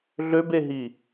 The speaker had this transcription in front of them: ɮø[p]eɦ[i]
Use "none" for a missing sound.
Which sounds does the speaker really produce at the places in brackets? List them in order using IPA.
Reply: b, i

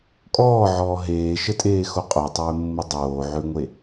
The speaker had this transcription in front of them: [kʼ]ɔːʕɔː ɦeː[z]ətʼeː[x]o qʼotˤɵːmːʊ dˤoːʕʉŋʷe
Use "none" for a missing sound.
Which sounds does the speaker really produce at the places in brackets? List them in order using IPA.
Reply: kʼ, ʃ, x

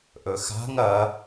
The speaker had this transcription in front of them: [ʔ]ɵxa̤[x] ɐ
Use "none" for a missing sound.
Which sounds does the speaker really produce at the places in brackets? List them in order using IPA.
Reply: ʔ, ŋ

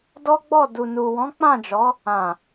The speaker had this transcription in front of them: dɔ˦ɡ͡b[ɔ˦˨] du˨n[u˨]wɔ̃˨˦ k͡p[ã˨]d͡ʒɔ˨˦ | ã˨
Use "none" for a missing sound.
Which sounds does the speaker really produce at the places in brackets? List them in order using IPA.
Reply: ɔ˦˨, u˨, ã˦˨

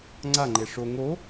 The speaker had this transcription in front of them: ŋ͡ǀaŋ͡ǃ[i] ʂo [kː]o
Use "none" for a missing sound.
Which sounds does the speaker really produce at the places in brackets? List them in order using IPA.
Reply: e, ŋ

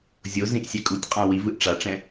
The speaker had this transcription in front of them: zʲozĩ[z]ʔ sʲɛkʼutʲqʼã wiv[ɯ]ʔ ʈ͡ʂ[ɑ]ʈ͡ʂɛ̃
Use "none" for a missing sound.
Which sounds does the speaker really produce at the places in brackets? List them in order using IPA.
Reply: none, ɯ, a

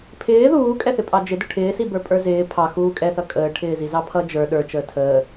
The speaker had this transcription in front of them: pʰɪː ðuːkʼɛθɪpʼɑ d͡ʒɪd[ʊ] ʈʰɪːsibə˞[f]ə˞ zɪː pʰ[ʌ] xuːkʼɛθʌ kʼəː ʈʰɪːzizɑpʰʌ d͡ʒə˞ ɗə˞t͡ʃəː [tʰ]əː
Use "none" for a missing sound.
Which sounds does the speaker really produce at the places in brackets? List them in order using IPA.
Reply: ʊ, pʼ, ɑ, tʰ

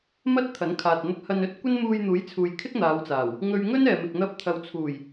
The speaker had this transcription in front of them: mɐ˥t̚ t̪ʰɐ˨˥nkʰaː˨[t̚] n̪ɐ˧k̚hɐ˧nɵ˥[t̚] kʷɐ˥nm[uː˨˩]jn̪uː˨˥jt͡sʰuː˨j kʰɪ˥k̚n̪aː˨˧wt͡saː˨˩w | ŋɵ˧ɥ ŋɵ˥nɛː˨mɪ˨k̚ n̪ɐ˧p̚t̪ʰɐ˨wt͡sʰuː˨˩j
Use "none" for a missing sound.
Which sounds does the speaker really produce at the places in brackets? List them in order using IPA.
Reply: t̚, t̚, uː˧

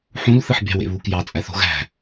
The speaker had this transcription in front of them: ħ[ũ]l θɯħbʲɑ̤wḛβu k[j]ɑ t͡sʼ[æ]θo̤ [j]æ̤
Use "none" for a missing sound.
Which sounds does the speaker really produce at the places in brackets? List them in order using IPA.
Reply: ũ, j, æ, ɣ

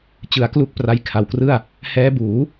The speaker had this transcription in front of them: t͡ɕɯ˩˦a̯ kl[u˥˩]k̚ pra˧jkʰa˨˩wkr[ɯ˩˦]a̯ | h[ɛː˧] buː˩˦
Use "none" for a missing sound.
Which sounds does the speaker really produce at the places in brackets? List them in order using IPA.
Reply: u˦˥, ɯ˥˩, ɛː˦˥

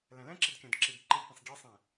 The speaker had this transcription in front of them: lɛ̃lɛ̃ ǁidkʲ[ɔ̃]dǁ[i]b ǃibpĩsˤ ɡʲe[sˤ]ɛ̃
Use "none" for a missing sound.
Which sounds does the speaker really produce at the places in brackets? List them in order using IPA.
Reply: ɔ̃, i, sˤ

